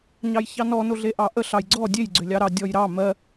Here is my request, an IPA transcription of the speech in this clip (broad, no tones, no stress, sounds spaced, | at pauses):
ɲ ɑ j ç ɑ n ɔ n o ɮ e ʔ ɑ ʔ ə ɬ ɑ j ɡ͡ǀ ɔ dʲ e j ɡ͡ǀ ʏ lʲ ɑ ɾ ɑ dʲ ɔ j ɾ ɑ m ɜ